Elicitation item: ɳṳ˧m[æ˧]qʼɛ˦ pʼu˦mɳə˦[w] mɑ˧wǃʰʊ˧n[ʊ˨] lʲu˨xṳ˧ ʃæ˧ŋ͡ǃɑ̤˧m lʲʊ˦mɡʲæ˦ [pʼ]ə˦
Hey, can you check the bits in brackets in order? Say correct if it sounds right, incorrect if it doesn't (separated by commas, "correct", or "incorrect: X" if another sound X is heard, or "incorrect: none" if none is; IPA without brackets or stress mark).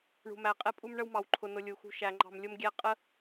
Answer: correct, correct, incorrect: ʊ˧, incorrect: qʼ